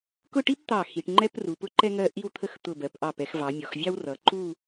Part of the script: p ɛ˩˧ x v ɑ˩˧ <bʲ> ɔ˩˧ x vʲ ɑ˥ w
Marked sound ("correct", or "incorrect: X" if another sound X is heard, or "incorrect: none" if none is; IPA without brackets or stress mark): incorrect: mʲ